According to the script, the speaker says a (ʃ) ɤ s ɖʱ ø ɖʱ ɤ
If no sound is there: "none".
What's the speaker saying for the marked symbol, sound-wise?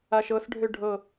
ʃ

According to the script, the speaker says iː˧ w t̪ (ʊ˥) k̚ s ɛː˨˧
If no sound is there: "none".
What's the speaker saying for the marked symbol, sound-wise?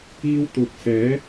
ʊ˨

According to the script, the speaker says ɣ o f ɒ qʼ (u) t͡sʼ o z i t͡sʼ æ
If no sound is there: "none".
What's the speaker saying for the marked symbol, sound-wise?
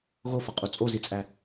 u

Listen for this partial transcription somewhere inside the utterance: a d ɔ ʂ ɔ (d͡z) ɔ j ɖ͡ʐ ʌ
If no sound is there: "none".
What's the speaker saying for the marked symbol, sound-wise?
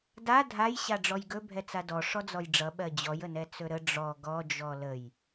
d͡z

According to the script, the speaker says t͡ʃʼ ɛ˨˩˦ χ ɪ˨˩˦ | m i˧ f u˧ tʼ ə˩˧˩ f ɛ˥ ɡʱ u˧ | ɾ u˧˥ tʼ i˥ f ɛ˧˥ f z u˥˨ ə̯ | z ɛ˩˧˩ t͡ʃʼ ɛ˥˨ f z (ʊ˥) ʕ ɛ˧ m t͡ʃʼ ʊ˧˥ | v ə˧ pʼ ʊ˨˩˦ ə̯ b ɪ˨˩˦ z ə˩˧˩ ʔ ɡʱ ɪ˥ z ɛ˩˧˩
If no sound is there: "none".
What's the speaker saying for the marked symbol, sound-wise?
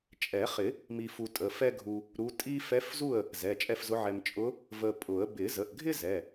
ʊ˧˥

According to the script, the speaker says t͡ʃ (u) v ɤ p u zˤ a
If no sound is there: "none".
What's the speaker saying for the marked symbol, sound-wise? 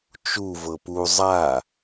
u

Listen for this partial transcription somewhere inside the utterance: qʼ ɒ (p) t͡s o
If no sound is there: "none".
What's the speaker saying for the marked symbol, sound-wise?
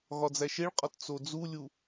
t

